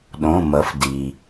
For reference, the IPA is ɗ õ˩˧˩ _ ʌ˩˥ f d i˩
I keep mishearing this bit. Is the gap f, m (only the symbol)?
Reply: m